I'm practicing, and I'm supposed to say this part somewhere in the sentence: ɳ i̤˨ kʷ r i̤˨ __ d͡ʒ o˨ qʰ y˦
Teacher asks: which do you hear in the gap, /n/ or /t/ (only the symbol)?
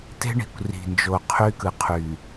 n